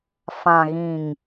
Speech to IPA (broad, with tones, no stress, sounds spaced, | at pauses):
f ã˨ ɣ ĩ˨ ŋ